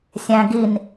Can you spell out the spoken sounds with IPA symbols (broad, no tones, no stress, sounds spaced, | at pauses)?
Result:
sʲ æ̃ ɡ i n